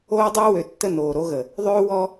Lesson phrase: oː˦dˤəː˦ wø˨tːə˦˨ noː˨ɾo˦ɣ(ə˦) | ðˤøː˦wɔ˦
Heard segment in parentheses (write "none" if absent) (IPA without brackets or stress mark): ə˨